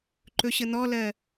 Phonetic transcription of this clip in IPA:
ǃ ɵ ɕ ə n̪ ɔ l ɜ

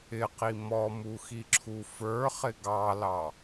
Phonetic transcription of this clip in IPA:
ɪ q i m ɔ m u x i ǁʰ u f ə˞ χ ɪ ɡ ɑ l ɑ

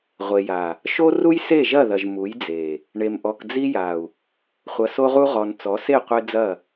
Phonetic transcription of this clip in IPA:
ʁʷ e˨ j a˨ | ʃ o˦ r u˦ j s e˦˨ ʒ ɐ˦˨ ð ɐ˨ ʒ m u˨˦ j d͡z e˨ | ɳ e˨ m ʔ ɔ˨ k d͡z i˦ j a˨ u̯ | χʷ ɐ˨ s o˦ ʁ u˦ ʁ ɔ˨ n t͡s ɔ˨˦ s e˦˨ qʷ e˦ d͡z ɐ˦˨

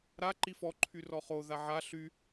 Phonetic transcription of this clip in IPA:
ɾ a ǃ i f ɔ ǃʰ y r ɔ χ o ð a ʕ a ɬ y

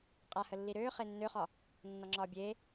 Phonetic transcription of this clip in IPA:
qʼ a h ə lː i ɾ øː χ e nː ø χ ɒ | nː ɒ ŋ͡ǁ ɒː bʲ eː

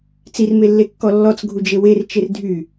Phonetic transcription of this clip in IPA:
t͡s i r m e lː e kː ɔ lː ɔ t͡s ɡʱ u d͡ʒ e w e r t͡ʃ e r dʱ y

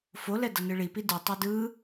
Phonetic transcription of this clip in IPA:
f o l ɛ d ʌ n ɯ ɭ i p i d ɯ tˤ e d ɯ

